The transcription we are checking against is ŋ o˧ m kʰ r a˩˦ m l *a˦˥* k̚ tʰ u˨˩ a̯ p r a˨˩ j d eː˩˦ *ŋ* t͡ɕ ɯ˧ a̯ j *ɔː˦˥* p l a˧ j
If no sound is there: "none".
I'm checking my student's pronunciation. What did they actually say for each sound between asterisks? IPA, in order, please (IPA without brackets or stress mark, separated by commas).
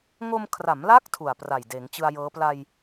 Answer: a˦˥, ŋ, ɤː˦˥